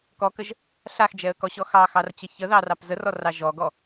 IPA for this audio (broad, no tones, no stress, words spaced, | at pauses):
kɔkəʒ | ɬaxd͡ʒɛə̯kɔɕɔ xɑxɑrt͡ɕə çəðɑrɑp zərɔrɑ ʒɔɡɔ